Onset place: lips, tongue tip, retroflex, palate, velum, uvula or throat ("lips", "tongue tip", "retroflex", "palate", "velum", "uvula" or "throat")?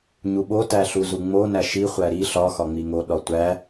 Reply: palate